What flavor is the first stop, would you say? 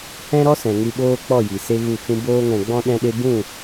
implosive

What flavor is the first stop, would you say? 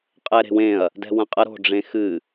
ejective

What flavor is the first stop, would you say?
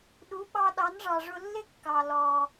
implosive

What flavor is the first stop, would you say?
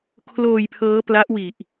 aspirated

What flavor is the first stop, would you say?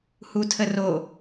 aspirated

